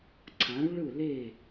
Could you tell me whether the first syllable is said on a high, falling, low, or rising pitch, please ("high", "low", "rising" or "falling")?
rising